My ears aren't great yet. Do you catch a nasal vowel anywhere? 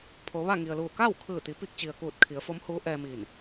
no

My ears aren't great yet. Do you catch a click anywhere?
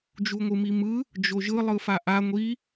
no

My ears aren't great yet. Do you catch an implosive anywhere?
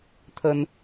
no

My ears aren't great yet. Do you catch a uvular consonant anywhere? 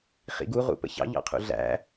yes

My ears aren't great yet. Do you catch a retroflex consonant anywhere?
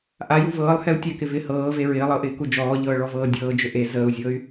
yes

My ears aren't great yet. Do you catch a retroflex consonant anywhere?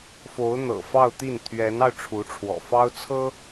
yes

